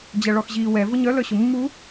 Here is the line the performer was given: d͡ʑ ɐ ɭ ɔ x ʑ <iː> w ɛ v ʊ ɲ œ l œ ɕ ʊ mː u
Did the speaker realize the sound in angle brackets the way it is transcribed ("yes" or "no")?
yes